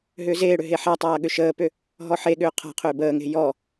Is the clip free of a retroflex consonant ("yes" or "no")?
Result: no